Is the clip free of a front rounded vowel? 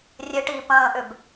no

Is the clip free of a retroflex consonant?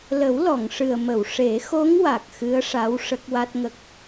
no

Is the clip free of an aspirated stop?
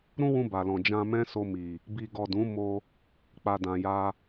yes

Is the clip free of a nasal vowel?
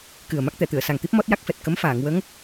yes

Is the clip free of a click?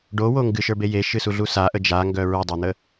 yes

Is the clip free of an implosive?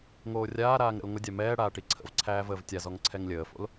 yes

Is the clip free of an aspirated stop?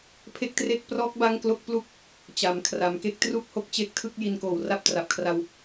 no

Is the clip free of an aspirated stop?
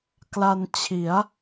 no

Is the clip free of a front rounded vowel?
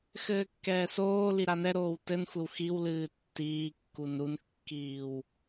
yes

